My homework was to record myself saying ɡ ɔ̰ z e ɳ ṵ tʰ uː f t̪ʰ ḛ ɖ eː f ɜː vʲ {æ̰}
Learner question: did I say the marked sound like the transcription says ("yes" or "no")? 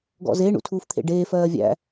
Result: yes